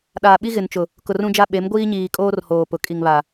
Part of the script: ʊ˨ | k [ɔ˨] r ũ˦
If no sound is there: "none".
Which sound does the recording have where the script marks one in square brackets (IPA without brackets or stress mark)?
ʊ˨